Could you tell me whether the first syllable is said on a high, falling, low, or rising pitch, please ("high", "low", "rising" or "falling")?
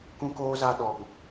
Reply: high